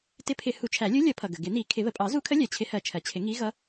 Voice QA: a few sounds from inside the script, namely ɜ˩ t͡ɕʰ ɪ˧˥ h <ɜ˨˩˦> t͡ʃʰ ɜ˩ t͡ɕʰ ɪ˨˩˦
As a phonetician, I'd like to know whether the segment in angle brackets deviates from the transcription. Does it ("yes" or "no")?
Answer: no